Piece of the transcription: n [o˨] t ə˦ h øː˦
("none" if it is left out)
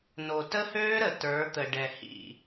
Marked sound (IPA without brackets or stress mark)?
o˨